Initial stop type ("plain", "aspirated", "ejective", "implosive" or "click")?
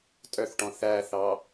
ejective